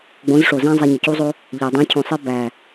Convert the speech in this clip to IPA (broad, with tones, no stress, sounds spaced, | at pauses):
ɡ͡b õ˨˦ z ʂ o˨ z æ̃˦ zˤ æ˧ ɲ ɒ˨ c u˦ zˤ o˦ | ʎ æ˨ dˤ ĩ˨˦ cʰ õ˨ sˤ e˦ b æ˨